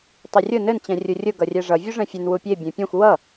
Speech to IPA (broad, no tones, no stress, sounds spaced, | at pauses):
tˤ e rʲ ʊ n ɘ n t͡ɕ ɛ̃ rʲ u rʲ ʊ ɡ ʌ rʲ ɛ ʐ ʌ vʲ u ʐ ɛ̃ fʲ ɘ n w u pʲ e bʲ ẽ pʲ ẽ xʷ w ʌ